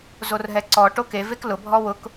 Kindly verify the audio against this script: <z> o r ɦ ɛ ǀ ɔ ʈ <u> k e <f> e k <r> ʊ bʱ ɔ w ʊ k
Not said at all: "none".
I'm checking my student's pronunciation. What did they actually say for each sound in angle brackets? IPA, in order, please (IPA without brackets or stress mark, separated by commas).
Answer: z, o, v, l